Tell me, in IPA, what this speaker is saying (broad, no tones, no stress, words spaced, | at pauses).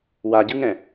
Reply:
waɟɯŋɛ̃